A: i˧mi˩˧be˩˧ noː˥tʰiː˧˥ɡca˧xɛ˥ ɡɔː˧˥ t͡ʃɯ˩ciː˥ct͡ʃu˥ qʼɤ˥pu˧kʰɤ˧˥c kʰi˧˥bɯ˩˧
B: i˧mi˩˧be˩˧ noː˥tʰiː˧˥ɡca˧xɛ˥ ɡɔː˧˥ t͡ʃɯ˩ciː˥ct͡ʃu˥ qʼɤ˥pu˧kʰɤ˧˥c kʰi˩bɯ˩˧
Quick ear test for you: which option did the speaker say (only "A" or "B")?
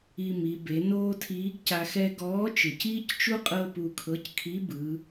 A